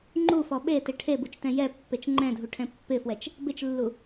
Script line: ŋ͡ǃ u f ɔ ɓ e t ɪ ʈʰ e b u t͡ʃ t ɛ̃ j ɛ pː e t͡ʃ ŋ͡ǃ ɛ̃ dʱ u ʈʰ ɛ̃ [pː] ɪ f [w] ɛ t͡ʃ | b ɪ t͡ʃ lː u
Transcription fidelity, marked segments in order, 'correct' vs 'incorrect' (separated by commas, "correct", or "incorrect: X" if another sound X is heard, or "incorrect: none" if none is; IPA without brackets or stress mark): correct, correct